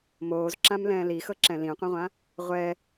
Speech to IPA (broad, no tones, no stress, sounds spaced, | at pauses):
m oː z ǁ ã m l ɛ̃ː l i x ɤ ǁ ɛ̃ l ĩ qʷ ĩ ʁʷ ã | ʁʷ ɛ